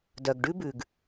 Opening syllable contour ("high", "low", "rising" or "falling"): low